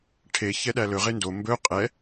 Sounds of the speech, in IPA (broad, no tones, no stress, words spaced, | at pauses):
ʈʰe çɛɗælɵ ʁendo mbɵ qʼɛ